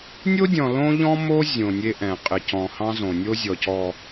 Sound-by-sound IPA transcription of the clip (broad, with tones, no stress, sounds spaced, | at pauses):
nʲ o˦ dʲ ɔ̃˨ l õ˦ ʎ ɔ̃˦ m o˦ zʲ õ˨ nʲ e˦ ʔ ɛ̃˨ qʼ ɪ˨ c ɔ̃˨ h ɑ̃˦ z õ˨ nʲ o˦ zʲ ɔ˨ c ɔ˨